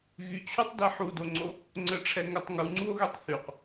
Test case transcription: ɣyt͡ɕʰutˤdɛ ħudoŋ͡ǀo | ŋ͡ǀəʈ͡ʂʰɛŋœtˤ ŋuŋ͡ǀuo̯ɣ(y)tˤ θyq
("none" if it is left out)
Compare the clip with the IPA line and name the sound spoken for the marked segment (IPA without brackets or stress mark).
ø